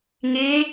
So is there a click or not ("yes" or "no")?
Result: no